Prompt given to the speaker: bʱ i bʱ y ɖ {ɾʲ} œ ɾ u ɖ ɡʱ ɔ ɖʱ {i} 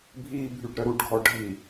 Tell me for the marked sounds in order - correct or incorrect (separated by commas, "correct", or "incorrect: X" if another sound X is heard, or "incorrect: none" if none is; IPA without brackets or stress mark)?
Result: incorrect: ɾ, correct